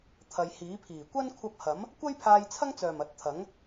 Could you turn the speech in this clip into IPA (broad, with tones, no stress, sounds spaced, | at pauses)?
t̪ʰ ɐ˨ j h iː˨˥ pʰ iː˨˩ kʷ ɐ˥ n kʷʰ ɐ˧ p̚ h ɐ˨˥ m | kʷ ɐ˥ j pʰ aː˧ j t͡sʰ ɐ˥ ŋ t͡s œː˨˩ m ɐ˨˥ t̚ t̪ʰ ɐ˨˥ ŋ